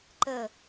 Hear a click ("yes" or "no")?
yes